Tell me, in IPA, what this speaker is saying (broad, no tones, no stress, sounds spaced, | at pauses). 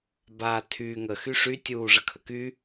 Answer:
b a tʰ y ŋ ə x y ʂ y tʲ uː ʐ ə kʰ ə k y